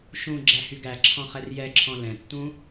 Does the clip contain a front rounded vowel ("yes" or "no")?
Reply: yes